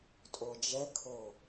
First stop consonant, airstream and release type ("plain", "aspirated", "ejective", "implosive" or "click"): ejective